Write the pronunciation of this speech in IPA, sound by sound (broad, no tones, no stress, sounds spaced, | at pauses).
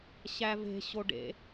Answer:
ɕ æ v e̤ ɕ o ɖ ḛ